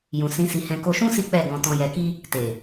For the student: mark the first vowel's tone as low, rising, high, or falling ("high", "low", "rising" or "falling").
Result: low